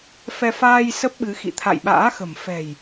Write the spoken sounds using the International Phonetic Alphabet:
f ɛ˧ f aː˧ j s ə˦˥ p̚ ɓ ɨ˨˦ x ḭ˧˨ t̪ʰ a̰˧˨ j ɓ a̰ː˧˥ x ə̤˨˩ m f ɛ̤˨˩ j

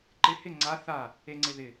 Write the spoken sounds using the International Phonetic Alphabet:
ǃ ɪ h ɪ ŋ͡ǀ a θ a | e ŋ͡ǀ ɪ ð ɪ

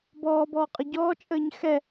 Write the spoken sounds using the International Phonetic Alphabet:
b ɔː b ɔː qʼ ə ɟ ɔː t͡ʃʼ əː ɲ x ɛ

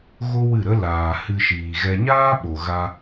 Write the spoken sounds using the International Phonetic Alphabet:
ɣ o˦ w ɨ˦˨ ɾ ə˦ l aː˨ h ɨ˧ ʃ iː˨ ɣ ɛ˧ ɲ aː˦ ɓ o˨ ɣ a˧

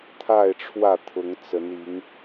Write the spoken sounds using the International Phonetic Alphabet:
t̪ʰ a˥˨ ɪ̯ ʈ͡ʂʰ w ä˥˨ t̪ʰ ʊ˨˦ ŋ t͡s ə˨˦ n i˨˦ ŋ

